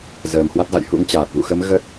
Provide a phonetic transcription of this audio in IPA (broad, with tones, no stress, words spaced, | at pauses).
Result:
zəː˨˩mhwa˦˥t̚za̰˧˨j hṵ˧˥ŋt͡ɕaː˨˩t̚ vṵ˧˨xə˨˦m ɣə˦˥t̚